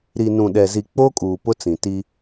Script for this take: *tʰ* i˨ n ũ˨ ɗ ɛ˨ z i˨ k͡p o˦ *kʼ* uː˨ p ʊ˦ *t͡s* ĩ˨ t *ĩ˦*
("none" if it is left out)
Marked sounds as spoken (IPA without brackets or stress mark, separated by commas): ɾ, kʼ, t͡s, i˦